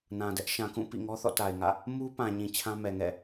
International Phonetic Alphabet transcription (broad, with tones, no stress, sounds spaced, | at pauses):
n ã˨ d ɛ˦ ʔ ʃ ã˨ k ũ˦˨ p ḭ˦˨ ŋ ɔ˦ θ ɔ̰˦˨ t a˨ ɪ̯ ŋ ä̰˦˨ | m u˦ p ã˨ ɲ ĩ˨ t͡ɕʰ ã˦ m ɛ˨ ŋ ɛ̰˦˨